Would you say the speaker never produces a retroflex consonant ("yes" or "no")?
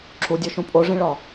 no